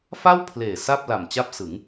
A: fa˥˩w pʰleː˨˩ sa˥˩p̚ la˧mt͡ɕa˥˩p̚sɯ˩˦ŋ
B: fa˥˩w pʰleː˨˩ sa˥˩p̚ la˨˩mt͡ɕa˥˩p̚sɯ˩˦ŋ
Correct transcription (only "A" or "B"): B